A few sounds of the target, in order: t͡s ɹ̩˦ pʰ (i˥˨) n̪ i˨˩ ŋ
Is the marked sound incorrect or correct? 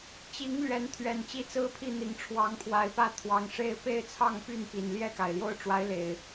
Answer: correct